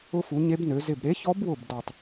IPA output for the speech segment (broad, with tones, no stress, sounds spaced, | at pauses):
ʊ˧˥ f u˩˥ ɲ e˧˥ b n ø˩˥ z ɪ˧˩ b ɾ e˧˥ ç ɔ˧˥ b w ʊ˧˩ b d ɔ˧˩ tˤ